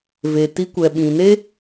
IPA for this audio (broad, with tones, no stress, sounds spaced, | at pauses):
v e˨ t i˧ kʷ ɛ˨ ɓ ĩ˨ n e˦